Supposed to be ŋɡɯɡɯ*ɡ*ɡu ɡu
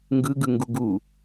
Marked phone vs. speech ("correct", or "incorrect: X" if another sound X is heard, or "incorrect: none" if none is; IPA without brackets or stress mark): incorrect: ŋ